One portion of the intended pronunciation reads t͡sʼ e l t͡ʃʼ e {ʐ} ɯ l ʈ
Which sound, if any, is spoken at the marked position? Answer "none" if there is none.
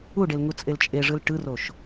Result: ʐ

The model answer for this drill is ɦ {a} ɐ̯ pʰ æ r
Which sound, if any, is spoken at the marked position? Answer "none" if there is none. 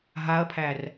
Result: a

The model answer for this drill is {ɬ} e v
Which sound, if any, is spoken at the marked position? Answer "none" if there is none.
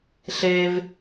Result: ɬ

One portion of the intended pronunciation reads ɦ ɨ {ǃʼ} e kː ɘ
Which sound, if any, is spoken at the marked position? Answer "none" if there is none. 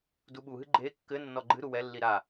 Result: ɡ͡ǃ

